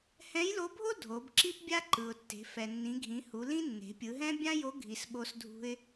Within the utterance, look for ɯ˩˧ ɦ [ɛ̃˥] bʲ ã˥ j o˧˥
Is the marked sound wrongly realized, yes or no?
no